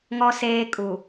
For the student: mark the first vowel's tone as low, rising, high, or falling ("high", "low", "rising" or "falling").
low